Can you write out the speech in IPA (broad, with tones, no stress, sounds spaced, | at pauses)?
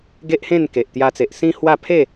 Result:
ɡ e˦ ʔ h ẽ˥˧ n k e˨ ʔ t̪ j a˧ t͡s e˨ ʔ s ĩ˦ h w a˥˧ pʰ e˥˧